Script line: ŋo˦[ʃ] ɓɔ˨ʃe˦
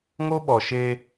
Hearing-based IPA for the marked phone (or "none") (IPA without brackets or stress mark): none